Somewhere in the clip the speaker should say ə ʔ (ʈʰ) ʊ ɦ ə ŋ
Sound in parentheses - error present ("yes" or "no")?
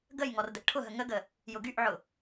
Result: no